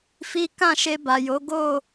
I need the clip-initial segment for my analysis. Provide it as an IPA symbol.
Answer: f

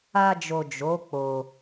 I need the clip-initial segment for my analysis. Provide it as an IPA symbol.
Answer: a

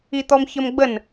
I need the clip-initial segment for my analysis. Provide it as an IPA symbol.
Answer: i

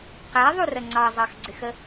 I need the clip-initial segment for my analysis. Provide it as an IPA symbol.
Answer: q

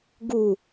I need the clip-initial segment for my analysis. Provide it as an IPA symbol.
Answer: ɡ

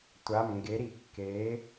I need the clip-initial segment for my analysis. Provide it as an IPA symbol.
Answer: tʷ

